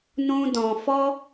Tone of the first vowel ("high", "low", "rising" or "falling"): high